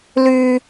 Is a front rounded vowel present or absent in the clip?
present